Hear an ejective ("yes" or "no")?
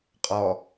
yes